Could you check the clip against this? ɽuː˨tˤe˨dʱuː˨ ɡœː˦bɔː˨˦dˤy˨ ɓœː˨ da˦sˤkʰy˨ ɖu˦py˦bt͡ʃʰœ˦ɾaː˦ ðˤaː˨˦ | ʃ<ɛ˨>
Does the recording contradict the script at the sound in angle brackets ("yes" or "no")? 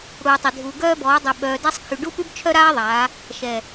no